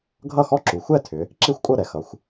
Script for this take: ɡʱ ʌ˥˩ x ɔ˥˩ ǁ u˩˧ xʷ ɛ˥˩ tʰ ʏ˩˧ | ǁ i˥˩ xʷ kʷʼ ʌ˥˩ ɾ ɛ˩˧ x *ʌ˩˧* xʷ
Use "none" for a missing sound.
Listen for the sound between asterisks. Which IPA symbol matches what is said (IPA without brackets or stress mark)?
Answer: ʌ˩˧